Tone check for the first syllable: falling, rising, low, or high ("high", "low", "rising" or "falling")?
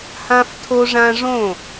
high